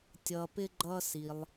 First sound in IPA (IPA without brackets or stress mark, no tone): tʲ